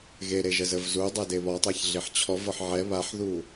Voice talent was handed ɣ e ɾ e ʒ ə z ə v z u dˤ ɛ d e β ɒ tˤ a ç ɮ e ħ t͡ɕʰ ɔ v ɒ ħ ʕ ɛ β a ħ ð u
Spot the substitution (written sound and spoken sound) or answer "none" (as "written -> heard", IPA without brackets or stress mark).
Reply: none